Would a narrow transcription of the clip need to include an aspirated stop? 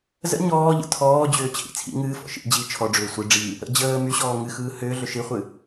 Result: yes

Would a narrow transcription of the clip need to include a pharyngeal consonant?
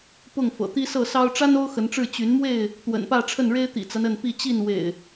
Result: no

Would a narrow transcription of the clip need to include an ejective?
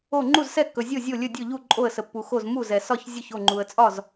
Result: yes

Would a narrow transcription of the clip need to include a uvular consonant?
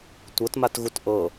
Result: no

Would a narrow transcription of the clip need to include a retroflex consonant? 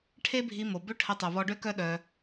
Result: yes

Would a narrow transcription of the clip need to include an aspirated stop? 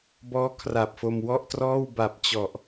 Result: yes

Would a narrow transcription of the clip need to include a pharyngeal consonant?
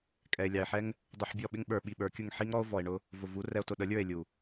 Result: yes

